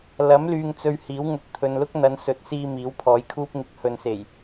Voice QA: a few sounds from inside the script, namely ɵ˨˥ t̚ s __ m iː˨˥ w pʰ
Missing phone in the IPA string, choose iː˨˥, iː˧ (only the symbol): iː˧